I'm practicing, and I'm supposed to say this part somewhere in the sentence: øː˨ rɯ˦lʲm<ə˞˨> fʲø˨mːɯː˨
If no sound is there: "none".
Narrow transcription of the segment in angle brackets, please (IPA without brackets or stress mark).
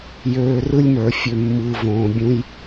ə˞˨